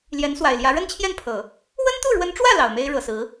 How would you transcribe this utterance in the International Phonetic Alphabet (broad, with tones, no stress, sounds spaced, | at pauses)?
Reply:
l j ɛ˧˥ n s w a˨˩ ɪ̯ l j ä˧˥ ɻ ə˥ n t͡ɕʰ j ɛ˥˩ n pʰ ɤ˨˩˦ | w ə˥ n t̪ u˥˩ ɻ w ə˧˥ n ʈ͡ʂ w ä˥˩ l ɑ˨˩ ʊ̯ m e˥ ɪ̯ ɻ ɤ˨˩ s ɹ̩˧˥